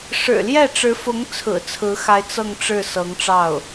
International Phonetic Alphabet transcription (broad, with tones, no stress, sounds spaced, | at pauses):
ʂ ɻ̩˨˩ l j ɛ˥˩ ʈ͡ʂ ɻ̩˧˥ f ʊ˧˥ ŋ t͡sʰ ɹ̩˨˩ t͡sʰ ɹ̩˧˥ x a˧˥ ɪ̯ t͡s ɤ˥˧ ŋ ʈ͡ʂ ɻ̩˥˩ s ɤ˧˥ ŋ ʈ͡ʂ ɑ˥˩ ʊ̯